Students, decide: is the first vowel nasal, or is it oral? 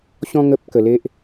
nasal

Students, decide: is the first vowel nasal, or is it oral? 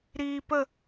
oral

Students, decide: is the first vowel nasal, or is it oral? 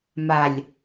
oral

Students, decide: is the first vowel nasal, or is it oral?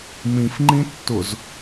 nasal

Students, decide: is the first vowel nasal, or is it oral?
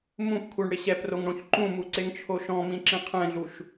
nasal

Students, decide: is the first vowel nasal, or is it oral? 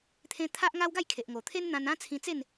nasal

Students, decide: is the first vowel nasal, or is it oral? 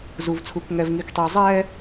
oral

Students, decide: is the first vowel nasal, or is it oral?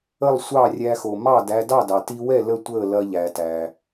oral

